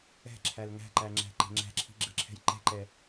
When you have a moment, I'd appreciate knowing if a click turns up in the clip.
yes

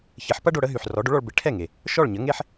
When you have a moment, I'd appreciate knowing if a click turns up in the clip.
no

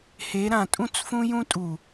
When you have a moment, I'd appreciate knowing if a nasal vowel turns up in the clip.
yes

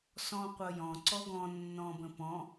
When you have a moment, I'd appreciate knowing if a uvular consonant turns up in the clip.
yes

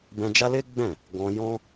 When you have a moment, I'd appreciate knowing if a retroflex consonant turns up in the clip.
no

